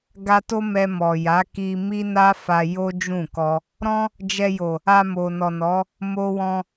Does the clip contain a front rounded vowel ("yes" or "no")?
no